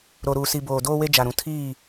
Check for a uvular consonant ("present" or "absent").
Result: absent